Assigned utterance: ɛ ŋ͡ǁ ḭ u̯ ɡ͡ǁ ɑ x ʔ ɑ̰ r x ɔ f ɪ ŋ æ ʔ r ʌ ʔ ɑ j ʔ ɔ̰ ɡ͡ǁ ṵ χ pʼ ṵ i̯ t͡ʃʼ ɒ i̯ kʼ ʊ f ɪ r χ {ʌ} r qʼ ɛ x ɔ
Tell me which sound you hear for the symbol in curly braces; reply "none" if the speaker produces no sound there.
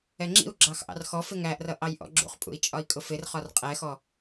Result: ɒ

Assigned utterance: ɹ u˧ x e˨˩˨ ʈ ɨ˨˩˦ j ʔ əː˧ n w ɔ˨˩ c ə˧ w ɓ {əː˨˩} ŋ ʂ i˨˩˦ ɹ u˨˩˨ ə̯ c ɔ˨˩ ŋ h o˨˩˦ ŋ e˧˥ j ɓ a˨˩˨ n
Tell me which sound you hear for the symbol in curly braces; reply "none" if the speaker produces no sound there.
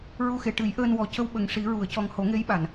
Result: ə˨˩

